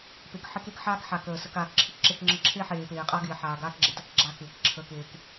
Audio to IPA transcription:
p e˨ k ħ ɪ˦ k e˦ k ħ aː˦ k ħ a˨ k əː˨ s ə˨ k aː˨ k ǁʰ ɪ˦ k ǁ e˦ k ŋ͡ǁ ə˦ ǁʰ e˦ ħ eː˨ p eː˨ qʼ a˦ ɡ ɪː˨ ħ aː˨ ɡ aː˦ k ɡ͡ǁ e˨ t ə˦ k ɡ͡ǁ a˦ k ɪː˨ k ǁʰ əː˦ k eː˦ k

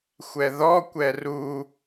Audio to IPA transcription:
xʷ ɛ ð ɔ kʷ ɛ r u

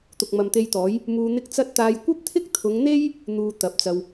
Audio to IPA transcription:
t̪ ʊ˨ k̚ m ɐ˨ m t̪ e˧ j t̪ ɔː˨˥ j | m uː˧ n̪ ɪ˥ k̚ t͡s ɐ˥ t̚ t̪ aː˧ j kʷ ɐ˥ p̚ t̪ʰ ɪ˥ k̚ t̪ʰ ʊ˨˧ ŋ n̪ e˥ j | n̪ uː˧ t̪ ɐ˨˥ p̚ t͡s ɐ˧ w

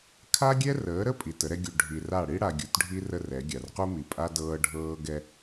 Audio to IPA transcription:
kʰ a˦ ɡʲ ɛ˦ r əː˨˦ ɾ ə˦ pʼ i˨ t ə˨˦ ɾ ɛ˦ ɡʲ u˨ ɖʱ i˨ r a˦˨ ɽ i˦ ɽ a˨ ɡʲ u˨ t ɖʱ i˦ r ə˦ r ɛ˨˦ ɡʲ a˨ r q u˦ m i˨ pʼ a˦ d ɤː˦ ɖʱ ɤː˦ ɡ ɛ˦

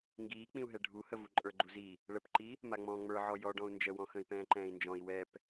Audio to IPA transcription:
ŋ ɡ iː k͡p ĩ u̯ ɦ ɛ ɖʱ u h ə v u ǃʼ ə˞ ɡ͡ǃ u z i | ɭ ə p ǃ i | m a ŋ͡m ɔ̃ː ŋ͡m ə˞ ʕ ɔ j ɔ ɖ ɔ̃ u̯ n d͡ʒ ə w ɔ̃ x ə̃ i̯ p ɛ̃ː ǃ ɛ̃ː i̯ n d͡ʒ ɔ̃ i̯ w ɛ p

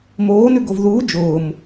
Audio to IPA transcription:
m oː n ʉ ɡ o v ð uː d͡ʒ ʊː m

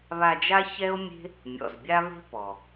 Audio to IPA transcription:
β a˧ d͡ʒ a˦ ç ɛ˦ o̯ mʲ e̤˦ | mʲ ɔ̰˨ z bʲ a˦ β e̤˦ p ɔ˨

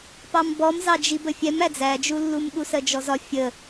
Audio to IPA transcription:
p ɑ m b ɔ m z ɑ d͡ʒ i b ə fʲ ɛ m æ d͡z æ d͡ʒ u lː u m ɠ u s ɜ d͡ʒ ɔ z ɒ fʲ ə

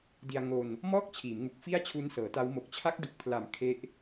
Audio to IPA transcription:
d i˧ a̯ ŋ o˧ n | m ɔː˥˩ k̚ t͡ɕʰ iː˩˦ m ŋ u˨˩ k̚ f i˥˩ a̯ t͡ɕʰ u˦˥ n s ɤː˩˦ t a˦˥ w m o˨˩ k̚ t͡ɕʰ a˦˥ k̚ d u˨˩ k̚ pʰ l a˩˦ m kʰ e˦˥ ʔ

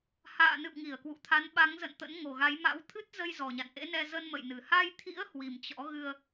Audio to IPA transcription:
h a̰ː˧˨ n ɨ̰˧˨ w ŋ i˧˩ ə̯ k w ṵ˧˨ t̪ʰ a˨˦ n ɓ a˨˦ ŋ z ə̰˧˨ n t̪ ə̰˧˥ n ŋ o˨˩ ɣ a˨˦ j m a̰˧˥ w t̪ʰ ɨ˦˥ t̚ z ə˧ j z ɔ˨˩ ɲ a̰˧˨ n ʔ ḛ˧˥ n ɛ˧ z ə˧ n m ə̰˧˨ j n ɨ˧˩ h a˧ j t̪ʰ ḭ˧˥ ə̯ h w i˨˩ m t͡ɕ ɔ̰˧˥ ɣ ɨ˧ ə̯

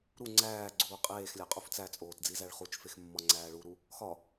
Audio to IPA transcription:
ɾ u ŋ͡ǀ æː ɡ͡ǀ uː qʼ eː x lʲ æ qʼ u f t͡s æ t͡sʼ oː t d͡z i z æ ɭ χ u t͡ʃ f e x mː ɒ ŋ͡ǀ æː ɭ u ɾ u | x ɒ

